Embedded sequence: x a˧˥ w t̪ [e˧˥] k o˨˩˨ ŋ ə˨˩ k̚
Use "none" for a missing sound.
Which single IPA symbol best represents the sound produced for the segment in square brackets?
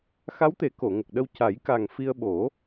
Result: e˨˩˦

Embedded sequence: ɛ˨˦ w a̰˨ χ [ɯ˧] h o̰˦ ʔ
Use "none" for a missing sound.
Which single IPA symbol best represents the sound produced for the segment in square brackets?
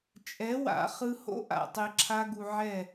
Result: ɯ˧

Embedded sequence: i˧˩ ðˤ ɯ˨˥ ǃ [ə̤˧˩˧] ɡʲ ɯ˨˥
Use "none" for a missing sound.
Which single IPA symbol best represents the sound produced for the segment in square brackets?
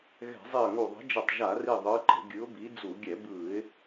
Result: ə̤˧˩˧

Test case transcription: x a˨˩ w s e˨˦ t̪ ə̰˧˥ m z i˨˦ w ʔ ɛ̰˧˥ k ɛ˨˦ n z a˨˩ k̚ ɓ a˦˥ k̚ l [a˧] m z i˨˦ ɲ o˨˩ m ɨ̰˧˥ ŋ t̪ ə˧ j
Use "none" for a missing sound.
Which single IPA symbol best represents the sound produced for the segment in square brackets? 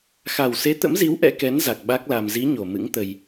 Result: a˧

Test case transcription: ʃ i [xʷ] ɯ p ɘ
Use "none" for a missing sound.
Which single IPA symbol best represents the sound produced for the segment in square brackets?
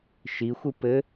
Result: xʷ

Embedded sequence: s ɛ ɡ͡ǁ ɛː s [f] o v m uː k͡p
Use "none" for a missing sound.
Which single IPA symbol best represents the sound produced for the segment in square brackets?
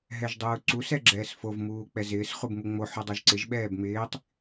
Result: f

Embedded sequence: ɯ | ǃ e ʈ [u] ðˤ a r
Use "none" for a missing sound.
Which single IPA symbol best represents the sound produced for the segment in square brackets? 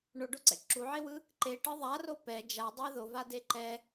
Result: ɯ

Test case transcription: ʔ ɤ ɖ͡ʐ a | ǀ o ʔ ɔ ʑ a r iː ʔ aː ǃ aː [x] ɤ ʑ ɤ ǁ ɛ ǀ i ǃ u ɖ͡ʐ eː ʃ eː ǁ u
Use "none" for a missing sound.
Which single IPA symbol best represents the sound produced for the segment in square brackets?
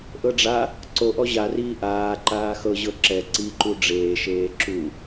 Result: x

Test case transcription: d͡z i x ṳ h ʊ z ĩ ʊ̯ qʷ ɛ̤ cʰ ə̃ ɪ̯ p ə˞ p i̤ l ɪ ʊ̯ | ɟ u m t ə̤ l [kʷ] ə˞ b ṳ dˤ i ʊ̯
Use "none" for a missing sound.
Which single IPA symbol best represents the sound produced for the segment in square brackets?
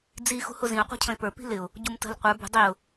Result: qʷ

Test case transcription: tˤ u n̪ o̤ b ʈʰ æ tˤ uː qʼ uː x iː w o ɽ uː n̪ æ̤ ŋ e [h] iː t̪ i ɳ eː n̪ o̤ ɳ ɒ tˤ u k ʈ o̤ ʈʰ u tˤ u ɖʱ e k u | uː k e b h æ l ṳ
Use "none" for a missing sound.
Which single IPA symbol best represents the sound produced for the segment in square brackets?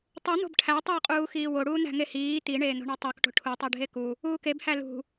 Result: h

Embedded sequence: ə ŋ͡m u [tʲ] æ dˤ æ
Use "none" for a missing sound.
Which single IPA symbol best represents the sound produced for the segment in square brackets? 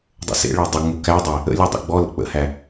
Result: k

